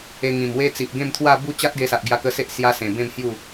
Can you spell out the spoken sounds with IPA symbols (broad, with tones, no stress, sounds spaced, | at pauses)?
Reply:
e˧ ŋ ĩ˨˩ m w e˦ t͡s i˨ ʔ ɡ ẽ˥˧ m t̪ʰ w a˥˧ b u˥˧ t͡ɕ a˦ t̚ ɡ e˧ s a˨ ʔ ɡ j a˧ k ə˧ s e˦ ʔ s j a˧ s ẽ˨˩ b ẽ˥˧ m h j u˥˧